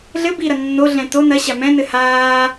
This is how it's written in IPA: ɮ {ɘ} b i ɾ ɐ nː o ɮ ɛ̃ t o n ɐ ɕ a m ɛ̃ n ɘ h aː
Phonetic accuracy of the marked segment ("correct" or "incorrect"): correct